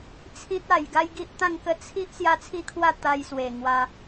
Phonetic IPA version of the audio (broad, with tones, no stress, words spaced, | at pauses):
t͡sʰĩ˦t̚a˧j ɡa˦jɡi˦ʔt̪ã˥˧ŋkə˦ t͡sʰi˦ʔ sja˦t͡sʰi˦kʰwa˥˧ t̪a˧jswe˨˩ ŋwa˧